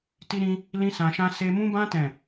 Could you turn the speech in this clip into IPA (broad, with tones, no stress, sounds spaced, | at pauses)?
t i˦ ɾ ĩ˦ | l ĩ˦ s ã˧ ʃ ã˦ s e˧ m ũ˦ b ã˦ t ɛ̃˦˨